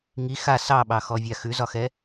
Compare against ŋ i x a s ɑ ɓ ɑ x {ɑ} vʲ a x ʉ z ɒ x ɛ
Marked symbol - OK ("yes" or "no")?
no